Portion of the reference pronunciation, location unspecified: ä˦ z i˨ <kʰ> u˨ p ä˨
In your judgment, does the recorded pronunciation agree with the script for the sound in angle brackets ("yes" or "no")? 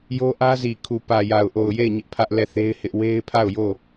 yes